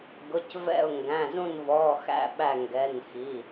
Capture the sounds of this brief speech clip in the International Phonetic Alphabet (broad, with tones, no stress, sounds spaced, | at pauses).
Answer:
ɡ ʊ˩˧˩ c v ɛ̰˧˩ ʊ̯ ŋ ɡ æ̃˩˧˩ z ũ˧˩ n v ɔ˩˧˩ x æ̰˧˩ ɓ æ˧˩ ŋ ɡ ɛ˩˧˩ n x i˩˧˩